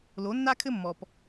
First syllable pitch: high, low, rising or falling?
rising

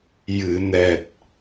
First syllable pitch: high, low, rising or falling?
low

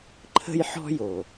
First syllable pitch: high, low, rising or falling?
high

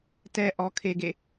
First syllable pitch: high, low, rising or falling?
high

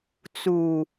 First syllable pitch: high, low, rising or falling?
low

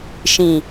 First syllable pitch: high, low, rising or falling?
low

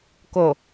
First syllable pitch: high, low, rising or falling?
low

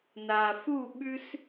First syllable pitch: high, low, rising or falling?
low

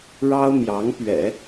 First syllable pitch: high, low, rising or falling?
high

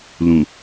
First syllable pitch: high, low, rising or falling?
low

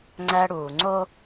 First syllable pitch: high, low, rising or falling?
high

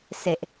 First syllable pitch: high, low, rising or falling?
low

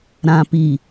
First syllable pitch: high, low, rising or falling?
low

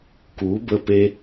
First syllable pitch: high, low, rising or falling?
rising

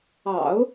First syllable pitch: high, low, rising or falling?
low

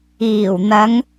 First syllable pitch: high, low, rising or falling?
low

